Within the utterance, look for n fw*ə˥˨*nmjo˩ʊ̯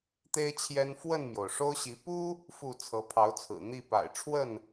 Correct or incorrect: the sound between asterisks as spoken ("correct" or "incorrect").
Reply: correct